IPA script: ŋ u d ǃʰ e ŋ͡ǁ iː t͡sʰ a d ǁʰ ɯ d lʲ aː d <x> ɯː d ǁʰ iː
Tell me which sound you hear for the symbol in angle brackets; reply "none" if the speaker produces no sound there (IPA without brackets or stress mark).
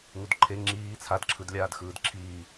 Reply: x